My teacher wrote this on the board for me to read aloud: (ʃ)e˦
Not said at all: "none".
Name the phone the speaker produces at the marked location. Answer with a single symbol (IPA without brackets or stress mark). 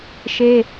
ʃ